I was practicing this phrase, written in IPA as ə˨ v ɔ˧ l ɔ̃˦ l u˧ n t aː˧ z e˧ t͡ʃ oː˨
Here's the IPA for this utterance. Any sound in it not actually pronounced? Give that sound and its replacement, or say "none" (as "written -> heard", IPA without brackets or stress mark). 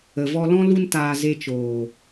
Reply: none